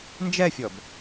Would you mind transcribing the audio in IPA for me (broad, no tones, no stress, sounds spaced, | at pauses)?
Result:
n d͡ʒ ɛ fʲ ɔ b